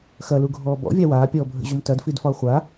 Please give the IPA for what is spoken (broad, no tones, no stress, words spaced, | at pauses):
xɐluɡʱɔː bɔ̰vʲa waːpʲɔːbʱə̰ʑom tɐdfidfɒ χʷa